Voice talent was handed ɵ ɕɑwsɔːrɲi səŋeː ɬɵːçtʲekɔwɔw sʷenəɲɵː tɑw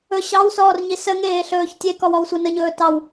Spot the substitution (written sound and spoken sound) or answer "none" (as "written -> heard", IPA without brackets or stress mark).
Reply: none